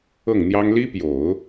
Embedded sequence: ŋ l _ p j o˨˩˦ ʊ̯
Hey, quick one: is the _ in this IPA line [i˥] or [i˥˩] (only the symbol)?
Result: i˥